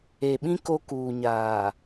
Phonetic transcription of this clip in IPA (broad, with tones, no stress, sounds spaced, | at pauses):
e˨ ɓ ĩ˦ k o˦ k uː˨ ɲ aː˨